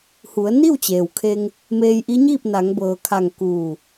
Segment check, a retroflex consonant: absent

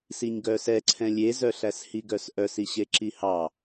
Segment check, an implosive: absent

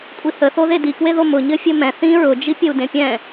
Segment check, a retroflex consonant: absent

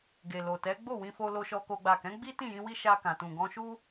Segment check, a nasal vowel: present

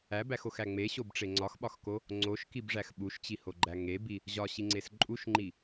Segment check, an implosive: present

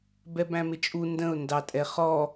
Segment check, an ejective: present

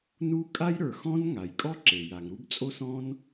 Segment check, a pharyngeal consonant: absent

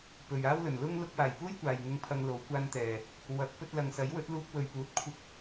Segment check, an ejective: absent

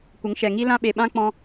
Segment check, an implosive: present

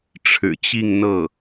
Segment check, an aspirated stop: present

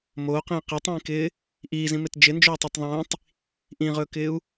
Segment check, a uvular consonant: present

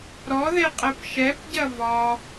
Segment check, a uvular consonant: present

